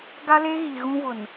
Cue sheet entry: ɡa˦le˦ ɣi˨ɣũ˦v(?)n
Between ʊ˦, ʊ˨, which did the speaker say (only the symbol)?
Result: ʊ˨